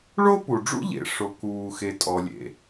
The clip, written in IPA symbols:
ɭ o˥ p u˩ ɖ͡ʐ ṵ˥ ʎ ḛ˩ ʂ o˩ k uː˩ x e˩ tʼ ɔ˩ lʲ ḛ˩

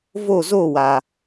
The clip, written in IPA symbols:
v o˦˨ z o˦˨ w aː˨

